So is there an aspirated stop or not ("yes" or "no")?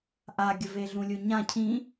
yes